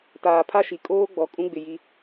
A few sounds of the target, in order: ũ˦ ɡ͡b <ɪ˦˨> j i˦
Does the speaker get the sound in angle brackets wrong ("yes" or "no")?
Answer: yes